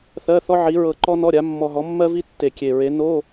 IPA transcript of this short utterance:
θɜ˧˥˧θɔ˥ʕi˨˥ ɹɤ˧ǃɔ˥nɔ˧˥˧ɾʲa˨˥ mːɔ˧ɦɔ˨˥mːɜ˥vi˥ tːe˨˩ kʲe˨˩ɹe˨˥ no˧˥˧

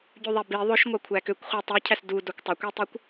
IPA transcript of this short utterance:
ɟʉðˤɛbi ðˤɵʃ ŋʷɑkʷʰækøkʷχʷæ tˤʉcʰæs du dokʷtˤɵkʷitˤikʷ

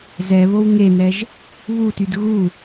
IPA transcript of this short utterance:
zɛβow ŋenɛʒ | βutyd ɣu

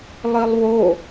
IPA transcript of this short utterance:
lˠilˠwo

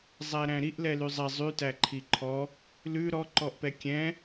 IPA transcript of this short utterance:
zˤæɾæ̃ɾiʔ lɛlyzˤɛ zˤytæ ǃʰiǃʰɔ | lʉ ɾɔǃɔʔpɛ kʲɛ̃

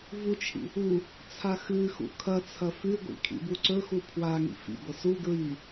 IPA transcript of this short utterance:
vut͡ʃʰḭ | u | t͡sʰaxɨxṵ kʰɐt͡sʰɐ fʉɡʷḭ kʰḭbuǀɵxu pʰwaŋḭ fḭɡʷɐ su ɡɹi

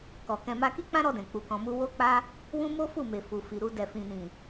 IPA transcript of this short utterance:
kɔ˨kɛ̃˧ma˦ ki˦k͡pã˦ɾɔ˧dɛ̃˨ k͡pu˨kɔ̃˨mu˧ wo˦k͡pa˦ | wũ˦ mo˦fu˦˨me˨ fu˨fi˨ɾu˧ dɛ˨fĩ˨nĩ˨

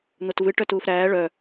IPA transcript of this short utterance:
n̪otvɨ ʈœtuːfɾæː ɭœ

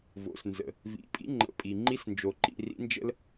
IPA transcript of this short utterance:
vo̰˩˧˩snzə̰˩ | vḭ˩˧˩pʼḭ˧˥ ŋ͡ǃə̰˩˧˩pʼi˩ ŋ͡ǃi˧˥snd͡ʒo˩ǃḭ˩˧˩ rḭ˧˥nd͡ʒə̰˥l

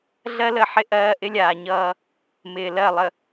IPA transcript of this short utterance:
ɮɜ˦lə˦˨ħɪ˦ ʔɜː˦ ʔɪ˦lʲaː˨ɲʌː˦ | mɪː˨lɜ˦˨lˠə˨

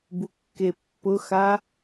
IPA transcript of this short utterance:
bukːepːʊxa

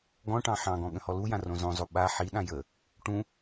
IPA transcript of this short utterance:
ɡɔ̃ʈɑ̃ ħɑ̃ɡɔ̃ ɠə̃hɔlujã rõzõzˤo ɓa ħiɗã jə | ʈũ

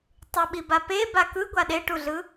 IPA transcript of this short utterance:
tˤɯɓiba pe bakɯ ɡʷaɗeʈuɮɯ

